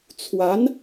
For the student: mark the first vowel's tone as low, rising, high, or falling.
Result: rising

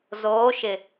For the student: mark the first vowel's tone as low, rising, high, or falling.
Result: rising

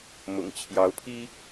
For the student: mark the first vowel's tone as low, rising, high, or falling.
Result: low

